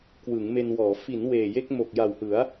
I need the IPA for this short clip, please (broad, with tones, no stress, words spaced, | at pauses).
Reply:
kwɯ˩˦ŋme˧nwɔː˩˦ fi˩˦n weː˨˩je˦˥k̚ mo˨˩k̚ja˨˩whɯ˩˦a̯